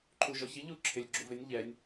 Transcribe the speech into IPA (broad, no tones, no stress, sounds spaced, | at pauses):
ǃʰ u ʒ ɔ ç i ʎ u ǁʰ ɪ lʲ ɡ͡ǁ u v ɪ nʲ ʎ ɛ nʲ